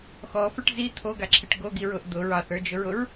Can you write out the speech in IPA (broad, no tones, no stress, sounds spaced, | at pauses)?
x ɔ f ə˞ ʈ z i t̪ʰ o ɡ a ǁʰ e ʈ ɡ o ɡ i ɹ ʊ ʔ d̪ ʊ ɹ ɑ θ ə˞ d͡ʒ ʊ ɹ ʊ ɹ